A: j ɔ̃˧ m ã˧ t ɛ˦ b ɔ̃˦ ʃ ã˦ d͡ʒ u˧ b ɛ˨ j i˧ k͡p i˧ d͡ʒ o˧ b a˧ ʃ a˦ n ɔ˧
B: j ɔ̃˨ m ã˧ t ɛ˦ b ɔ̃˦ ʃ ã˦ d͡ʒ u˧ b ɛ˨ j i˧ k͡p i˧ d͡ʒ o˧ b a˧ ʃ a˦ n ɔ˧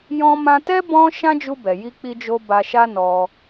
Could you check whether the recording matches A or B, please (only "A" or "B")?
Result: A